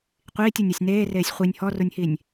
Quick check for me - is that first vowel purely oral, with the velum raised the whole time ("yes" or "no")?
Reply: yes